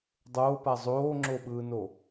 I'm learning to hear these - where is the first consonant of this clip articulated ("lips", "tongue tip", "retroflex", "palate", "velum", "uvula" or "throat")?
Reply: tongue tip